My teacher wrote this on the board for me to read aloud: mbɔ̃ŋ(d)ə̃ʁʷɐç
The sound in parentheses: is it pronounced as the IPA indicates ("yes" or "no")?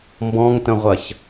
no